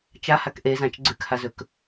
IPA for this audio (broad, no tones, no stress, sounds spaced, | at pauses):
t͡ʃ a h a k ʔ e z ã t͡ʃ ɡ͡ǀ ʉ k h a z ɵ k